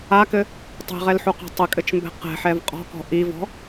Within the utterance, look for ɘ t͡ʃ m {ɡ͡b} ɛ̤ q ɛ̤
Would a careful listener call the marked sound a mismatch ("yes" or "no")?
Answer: yes